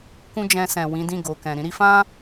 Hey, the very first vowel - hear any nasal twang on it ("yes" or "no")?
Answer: yes